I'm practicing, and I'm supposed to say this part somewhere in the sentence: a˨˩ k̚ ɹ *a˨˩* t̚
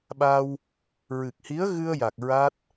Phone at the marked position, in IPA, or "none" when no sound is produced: a˦˥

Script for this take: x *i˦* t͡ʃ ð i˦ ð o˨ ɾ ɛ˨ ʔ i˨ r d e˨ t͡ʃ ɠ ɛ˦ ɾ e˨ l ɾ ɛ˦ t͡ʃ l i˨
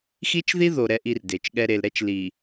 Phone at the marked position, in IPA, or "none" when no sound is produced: i˦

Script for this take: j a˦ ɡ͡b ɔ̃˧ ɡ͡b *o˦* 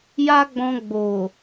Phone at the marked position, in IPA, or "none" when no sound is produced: o˨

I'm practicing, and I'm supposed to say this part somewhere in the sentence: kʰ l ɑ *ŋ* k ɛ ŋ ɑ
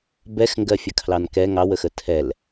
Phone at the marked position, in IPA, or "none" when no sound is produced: n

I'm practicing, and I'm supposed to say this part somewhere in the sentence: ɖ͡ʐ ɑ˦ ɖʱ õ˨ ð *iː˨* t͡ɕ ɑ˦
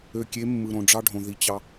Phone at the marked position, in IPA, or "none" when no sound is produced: i˨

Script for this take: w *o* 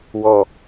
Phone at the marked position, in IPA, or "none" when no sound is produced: ɔ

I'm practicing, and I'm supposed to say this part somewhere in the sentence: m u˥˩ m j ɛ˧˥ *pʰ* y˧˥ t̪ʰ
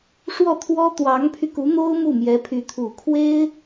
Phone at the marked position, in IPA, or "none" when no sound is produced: pʰ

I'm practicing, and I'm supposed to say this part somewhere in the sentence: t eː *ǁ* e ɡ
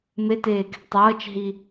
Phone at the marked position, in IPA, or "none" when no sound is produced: k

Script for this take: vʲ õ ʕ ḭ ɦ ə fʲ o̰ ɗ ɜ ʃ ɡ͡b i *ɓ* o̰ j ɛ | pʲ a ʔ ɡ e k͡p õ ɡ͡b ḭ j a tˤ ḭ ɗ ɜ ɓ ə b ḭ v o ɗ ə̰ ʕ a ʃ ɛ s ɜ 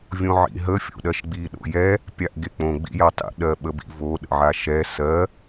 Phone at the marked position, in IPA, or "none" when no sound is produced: ɗ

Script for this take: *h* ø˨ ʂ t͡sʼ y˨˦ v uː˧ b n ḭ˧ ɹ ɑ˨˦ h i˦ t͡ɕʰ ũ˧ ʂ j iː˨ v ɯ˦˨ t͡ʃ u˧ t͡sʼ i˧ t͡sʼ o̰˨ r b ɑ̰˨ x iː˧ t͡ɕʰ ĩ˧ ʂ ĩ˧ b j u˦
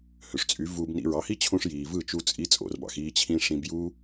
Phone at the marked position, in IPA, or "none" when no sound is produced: h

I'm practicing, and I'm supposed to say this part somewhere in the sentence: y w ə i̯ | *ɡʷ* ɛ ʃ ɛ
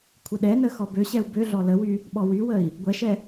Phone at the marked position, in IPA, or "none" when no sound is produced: ɡʷ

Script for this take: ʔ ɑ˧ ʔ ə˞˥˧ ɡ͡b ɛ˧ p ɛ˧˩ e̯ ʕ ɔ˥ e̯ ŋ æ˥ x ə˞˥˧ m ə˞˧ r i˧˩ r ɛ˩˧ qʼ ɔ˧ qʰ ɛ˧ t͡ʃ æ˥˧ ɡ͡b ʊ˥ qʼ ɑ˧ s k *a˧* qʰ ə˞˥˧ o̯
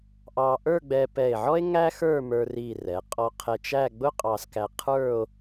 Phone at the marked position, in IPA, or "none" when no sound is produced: æ˧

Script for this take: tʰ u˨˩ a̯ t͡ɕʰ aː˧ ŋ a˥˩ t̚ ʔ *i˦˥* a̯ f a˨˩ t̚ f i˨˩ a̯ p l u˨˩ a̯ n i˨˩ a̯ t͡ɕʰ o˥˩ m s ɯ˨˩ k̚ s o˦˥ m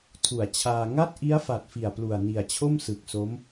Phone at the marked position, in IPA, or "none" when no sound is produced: i˦˥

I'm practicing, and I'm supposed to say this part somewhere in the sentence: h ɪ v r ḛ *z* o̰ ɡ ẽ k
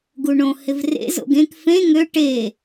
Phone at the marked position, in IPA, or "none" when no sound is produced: z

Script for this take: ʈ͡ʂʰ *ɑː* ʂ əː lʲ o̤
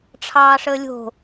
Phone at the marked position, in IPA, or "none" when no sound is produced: ɑː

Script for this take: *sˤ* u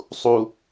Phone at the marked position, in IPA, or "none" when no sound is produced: sˤ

